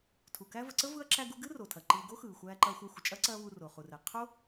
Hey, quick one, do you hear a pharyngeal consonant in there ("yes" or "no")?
no